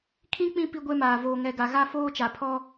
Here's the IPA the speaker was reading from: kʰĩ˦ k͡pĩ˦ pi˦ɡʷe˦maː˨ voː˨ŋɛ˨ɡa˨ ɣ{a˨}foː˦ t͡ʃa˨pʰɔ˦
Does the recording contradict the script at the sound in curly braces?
yes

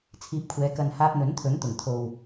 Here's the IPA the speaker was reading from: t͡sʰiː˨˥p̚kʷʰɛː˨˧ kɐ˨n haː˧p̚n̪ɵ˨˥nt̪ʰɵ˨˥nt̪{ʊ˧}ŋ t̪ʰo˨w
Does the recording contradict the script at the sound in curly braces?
yes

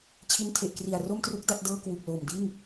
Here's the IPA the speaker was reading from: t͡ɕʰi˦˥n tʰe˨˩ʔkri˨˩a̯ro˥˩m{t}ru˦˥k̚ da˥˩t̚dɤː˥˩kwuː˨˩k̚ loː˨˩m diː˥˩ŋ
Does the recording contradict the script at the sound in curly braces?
no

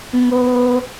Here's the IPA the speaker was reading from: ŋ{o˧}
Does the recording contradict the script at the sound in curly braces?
yes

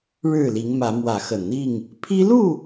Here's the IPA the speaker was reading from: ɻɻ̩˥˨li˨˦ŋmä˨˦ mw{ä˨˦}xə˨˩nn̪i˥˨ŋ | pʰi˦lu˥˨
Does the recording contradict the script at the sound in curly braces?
no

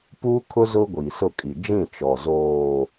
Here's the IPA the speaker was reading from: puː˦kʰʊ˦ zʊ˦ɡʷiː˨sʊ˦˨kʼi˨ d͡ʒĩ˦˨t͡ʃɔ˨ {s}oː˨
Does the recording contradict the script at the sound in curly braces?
yes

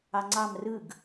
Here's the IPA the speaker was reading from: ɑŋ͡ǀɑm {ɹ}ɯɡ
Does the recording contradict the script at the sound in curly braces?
yes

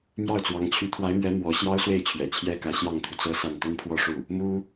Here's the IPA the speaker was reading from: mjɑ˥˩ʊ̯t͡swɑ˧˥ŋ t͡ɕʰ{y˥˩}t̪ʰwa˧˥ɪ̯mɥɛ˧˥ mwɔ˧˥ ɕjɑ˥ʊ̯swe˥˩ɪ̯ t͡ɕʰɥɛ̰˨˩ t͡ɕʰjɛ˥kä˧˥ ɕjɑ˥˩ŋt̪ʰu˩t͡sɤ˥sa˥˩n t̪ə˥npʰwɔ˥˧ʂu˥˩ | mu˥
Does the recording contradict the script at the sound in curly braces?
yes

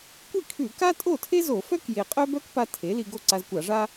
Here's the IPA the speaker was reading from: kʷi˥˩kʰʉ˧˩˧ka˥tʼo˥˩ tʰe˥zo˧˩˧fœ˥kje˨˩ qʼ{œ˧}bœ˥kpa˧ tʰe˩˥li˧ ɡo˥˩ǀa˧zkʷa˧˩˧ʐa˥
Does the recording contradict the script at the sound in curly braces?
yes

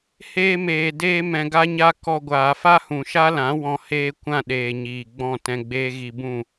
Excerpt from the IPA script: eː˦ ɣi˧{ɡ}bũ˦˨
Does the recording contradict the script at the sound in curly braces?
yes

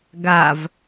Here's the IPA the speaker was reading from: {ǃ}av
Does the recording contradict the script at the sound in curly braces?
yes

